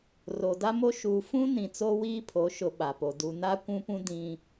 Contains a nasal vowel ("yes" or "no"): yes